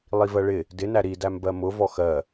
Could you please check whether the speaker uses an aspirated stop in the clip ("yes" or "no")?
no